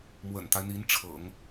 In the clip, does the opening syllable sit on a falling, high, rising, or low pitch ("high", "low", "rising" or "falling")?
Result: low